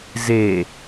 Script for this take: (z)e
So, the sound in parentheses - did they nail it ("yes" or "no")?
yes